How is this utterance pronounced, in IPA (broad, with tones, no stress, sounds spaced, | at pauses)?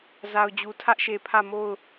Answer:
z a˨ ʊ̯ d͡ʑ u˨ tʰ ä˦ ʔ ʃ e˨ pʰ ä˦˨ m o˦˨ ʊ̯